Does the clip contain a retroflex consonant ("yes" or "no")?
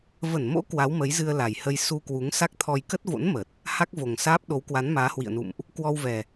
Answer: no